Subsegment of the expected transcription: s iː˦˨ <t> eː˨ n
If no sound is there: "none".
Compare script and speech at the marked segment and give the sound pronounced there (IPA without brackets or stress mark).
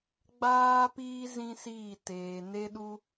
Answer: t